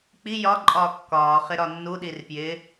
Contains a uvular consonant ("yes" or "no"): yes